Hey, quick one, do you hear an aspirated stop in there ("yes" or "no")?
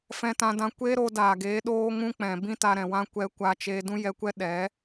no